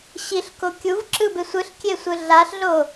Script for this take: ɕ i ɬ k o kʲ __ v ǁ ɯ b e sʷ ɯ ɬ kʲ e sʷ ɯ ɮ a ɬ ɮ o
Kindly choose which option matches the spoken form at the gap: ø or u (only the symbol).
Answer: u